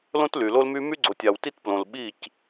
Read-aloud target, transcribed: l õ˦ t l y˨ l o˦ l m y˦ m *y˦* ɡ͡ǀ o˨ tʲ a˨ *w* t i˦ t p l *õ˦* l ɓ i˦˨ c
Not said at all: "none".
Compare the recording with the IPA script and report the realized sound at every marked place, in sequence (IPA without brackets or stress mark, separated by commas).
y˦, w, õ˨